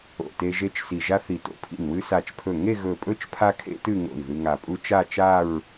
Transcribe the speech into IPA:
o̰˧˩te˥ ʒe˧t͡ʃ si˧˩ʒa˥θi˧˩to̰˥˧ pʰḭ˧˩n wɨ˧sa˧˩t͡ʃpʰɵ˧˩ ŋe˥˧ɣɵ˧˩pʼɵ˥˧t͡ʃ pʰa˥kʰḛ˥tɨ˥˧ŋo̰˧˩i̯ ðɨ˧ŋa˧˩pʼu˥ t͡ʃa˥˧t͡ʃa˥˧ɹ

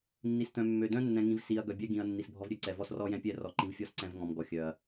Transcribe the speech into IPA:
nːi˨st̪œ̃˨mːø˨ dœ̃˦nːɛ̃˨ŋĩ˨v si˨ɐ̯ ɡœ˨bʲɛ˦ɡĩ˨ɐ̯ nːi˨sbʱɔ˦vɾʲø˦ǀɛ˨ vɔ˦srɔ˦jɛ̃˦pʲɛ˦˨ rɔ˨ǃĩ˨vfʲɔ˦s ǀɛ̃˦v ŋɔ̃˨mɡɔ˨ xʲœ˨ɐ̯

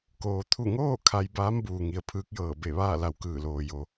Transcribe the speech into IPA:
koː˩t̪ʰu˧˩ŋoː˥˨ kʰa˧j baː˧˥mbuː˩ ŋi˩ə̯pʰɯː˧˥k̚jɤː˧˩ be˧˩ʋaː˥˨la˧˩w kɯː˧˩loː˩jo˩

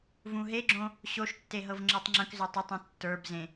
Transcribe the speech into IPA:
vũɦeɡ͡ǁõ | ɕoʃtːe ɦɤvŋ͡ǁɤtˤŋ͡ǁə̃kzʏ tˤʏtˤũ tːə˞bzẽ

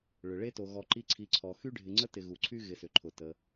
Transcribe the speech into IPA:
ɭʏ˩ɭe˥to˨ ɣɔ˨ǃi˦ ǀʰi˨ǀʰɔ˩ xy˥ɖʱɪ˨ŋ͡ǀə˥ tɪ˨ɣu˩ǀʰy˥ ɣɪ˨sʏ˩ ǃʰʊ˩ tə˩

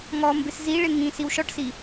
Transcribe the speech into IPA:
ŋɔmbɪs ziɭɪ ŋĩ siwʃɔʈsi

